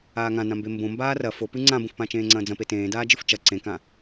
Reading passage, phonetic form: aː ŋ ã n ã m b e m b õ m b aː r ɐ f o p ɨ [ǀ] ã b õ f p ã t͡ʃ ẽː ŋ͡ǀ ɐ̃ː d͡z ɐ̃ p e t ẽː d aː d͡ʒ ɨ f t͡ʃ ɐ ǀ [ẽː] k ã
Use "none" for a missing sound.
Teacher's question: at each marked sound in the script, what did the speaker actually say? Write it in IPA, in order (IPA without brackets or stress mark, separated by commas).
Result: ŋ͡ǀ, ẽ